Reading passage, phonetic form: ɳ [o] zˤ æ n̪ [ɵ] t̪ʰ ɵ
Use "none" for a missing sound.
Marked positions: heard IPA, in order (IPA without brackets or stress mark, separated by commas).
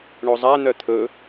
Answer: o, œ